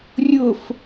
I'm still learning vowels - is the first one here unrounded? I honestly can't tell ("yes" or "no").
no